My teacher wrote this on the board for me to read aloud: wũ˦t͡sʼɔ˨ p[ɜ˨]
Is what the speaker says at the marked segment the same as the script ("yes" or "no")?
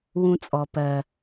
yes